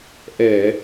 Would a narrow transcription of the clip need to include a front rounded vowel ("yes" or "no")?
no